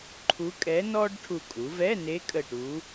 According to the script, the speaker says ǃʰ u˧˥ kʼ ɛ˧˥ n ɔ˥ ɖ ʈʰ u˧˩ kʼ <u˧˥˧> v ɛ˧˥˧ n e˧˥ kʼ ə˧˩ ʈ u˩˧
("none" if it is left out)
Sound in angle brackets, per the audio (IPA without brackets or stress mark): u˩˧